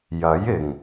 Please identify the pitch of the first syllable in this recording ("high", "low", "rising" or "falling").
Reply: rising